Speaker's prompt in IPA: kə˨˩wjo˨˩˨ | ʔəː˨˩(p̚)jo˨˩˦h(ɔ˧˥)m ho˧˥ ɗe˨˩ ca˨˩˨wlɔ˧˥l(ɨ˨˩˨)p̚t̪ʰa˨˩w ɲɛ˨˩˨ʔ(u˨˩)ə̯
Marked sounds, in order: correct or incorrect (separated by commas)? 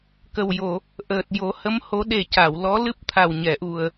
incorrect, incorrect, incorrect, correct